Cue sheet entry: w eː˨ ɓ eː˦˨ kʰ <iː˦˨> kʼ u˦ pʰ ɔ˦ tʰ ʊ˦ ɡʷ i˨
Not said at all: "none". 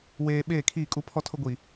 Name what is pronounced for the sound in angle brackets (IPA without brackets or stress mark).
iː˦˨